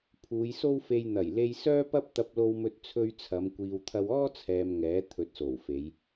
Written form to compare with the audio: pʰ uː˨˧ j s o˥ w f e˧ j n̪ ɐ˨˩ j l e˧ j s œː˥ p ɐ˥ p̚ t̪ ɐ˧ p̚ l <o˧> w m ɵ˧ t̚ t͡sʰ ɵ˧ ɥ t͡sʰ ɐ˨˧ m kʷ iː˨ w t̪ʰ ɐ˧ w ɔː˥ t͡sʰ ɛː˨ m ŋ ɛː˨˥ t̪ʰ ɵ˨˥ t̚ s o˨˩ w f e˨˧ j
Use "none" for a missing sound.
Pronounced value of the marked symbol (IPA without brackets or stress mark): o˧